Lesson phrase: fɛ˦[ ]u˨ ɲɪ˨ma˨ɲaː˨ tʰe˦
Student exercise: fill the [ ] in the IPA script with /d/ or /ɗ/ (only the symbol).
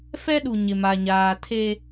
ɗ